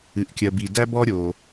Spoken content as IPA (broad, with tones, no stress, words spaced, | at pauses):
ɨ˩ʔkʲɜ˩bi˩ dæ˥bɔ˥ ɾʲo˩